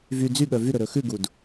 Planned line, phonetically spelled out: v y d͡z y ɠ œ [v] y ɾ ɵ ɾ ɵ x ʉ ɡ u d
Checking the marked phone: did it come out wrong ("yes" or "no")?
no